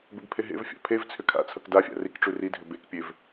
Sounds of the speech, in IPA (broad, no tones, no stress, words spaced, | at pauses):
bebpʰeɦḛvfʲa̰ pʰev t͡sʰʏkʰa̰t͡sʰʌk dafʲa̰ rikʈ͡ʂʉ ridʱʏ bekpʲev